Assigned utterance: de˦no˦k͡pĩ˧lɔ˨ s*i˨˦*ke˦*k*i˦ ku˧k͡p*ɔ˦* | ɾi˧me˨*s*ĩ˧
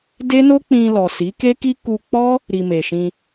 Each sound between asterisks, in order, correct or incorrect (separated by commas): correct, correct, correct, incorrect